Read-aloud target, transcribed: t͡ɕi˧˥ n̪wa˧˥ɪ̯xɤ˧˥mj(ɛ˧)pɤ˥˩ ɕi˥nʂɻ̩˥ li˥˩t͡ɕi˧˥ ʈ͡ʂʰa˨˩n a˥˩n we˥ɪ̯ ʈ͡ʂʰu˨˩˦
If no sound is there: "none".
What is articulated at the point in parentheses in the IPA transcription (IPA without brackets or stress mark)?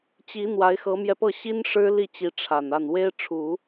ɛ˧